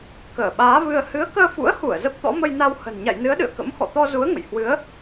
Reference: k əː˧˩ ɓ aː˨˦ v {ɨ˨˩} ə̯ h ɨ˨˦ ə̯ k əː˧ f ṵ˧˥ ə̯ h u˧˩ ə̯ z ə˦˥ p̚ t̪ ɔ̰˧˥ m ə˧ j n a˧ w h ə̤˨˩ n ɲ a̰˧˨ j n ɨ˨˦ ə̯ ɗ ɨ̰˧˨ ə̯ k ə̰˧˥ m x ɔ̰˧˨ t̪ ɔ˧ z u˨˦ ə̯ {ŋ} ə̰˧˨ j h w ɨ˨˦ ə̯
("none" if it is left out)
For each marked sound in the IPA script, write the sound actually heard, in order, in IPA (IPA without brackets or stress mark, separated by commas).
ɨ˧, ŋ